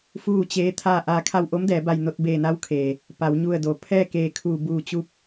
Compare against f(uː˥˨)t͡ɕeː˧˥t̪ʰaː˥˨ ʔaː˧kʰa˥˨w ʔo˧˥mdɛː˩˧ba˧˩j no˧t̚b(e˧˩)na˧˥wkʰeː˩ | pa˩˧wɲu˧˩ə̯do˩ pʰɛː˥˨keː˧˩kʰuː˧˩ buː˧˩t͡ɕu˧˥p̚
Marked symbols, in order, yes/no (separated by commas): yes, no